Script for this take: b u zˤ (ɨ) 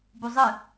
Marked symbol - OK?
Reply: yes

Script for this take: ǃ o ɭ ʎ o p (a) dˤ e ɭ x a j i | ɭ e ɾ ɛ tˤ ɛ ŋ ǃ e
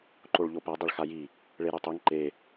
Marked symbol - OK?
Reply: yes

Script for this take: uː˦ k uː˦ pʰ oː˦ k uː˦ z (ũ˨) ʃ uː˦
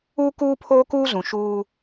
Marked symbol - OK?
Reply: yes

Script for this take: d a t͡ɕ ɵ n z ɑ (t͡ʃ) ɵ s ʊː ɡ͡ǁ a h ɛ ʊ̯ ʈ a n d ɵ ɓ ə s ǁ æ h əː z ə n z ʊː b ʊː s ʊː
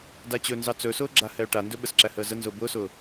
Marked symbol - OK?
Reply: no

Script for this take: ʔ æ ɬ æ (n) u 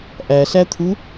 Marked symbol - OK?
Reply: no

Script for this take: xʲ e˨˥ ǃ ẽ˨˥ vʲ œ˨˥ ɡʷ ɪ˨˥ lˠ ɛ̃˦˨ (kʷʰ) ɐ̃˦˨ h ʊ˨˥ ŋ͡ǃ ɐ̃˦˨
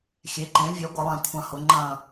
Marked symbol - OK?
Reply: yes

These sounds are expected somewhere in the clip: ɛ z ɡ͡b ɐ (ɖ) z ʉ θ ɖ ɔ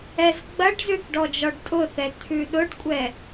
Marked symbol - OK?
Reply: yes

